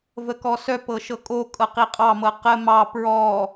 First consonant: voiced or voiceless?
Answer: voiced